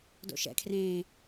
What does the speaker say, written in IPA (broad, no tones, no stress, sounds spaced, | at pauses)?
d o̰ ʃ ɛ̰ kʰ r ẽː